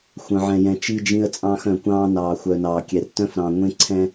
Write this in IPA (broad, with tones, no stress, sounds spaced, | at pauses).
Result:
xʷ œ̃˨ ʕ ɛ̃˨ j ɛ̃˨ t͡ʃ i˦ d͡ʒ ĩ˦ ə̯ t͡sʼ ɑ̃ː˦ x œ̃˨ kʷ ɑ̃ː˦ n ɑː˨ xʷ œ˨ n ɑː˨ kʲ ɛ˨ r t œ̃˦ f ɾ ɑ̃˨ ŋʷ ẽ˦ ǀʰ ɛ̃˦